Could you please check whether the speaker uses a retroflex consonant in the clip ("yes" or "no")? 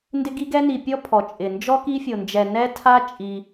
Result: no